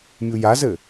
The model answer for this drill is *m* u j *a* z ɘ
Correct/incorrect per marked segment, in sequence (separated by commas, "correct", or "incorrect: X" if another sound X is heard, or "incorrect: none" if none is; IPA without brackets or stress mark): incorrect: mʲ, correct